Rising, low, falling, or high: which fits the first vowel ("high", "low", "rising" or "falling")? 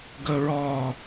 high